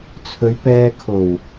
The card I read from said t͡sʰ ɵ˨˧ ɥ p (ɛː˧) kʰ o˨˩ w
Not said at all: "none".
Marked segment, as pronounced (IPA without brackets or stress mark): ɛː˧